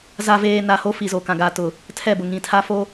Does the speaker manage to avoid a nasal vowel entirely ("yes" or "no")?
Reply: no